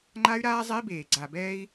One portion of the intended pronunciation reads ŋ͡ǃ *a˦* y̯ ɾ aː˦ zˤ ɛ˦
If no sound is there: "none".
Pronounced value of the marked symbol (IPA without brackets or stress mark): a˦